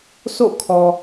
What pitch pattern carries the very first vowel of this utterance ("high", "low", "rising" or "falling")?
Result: falling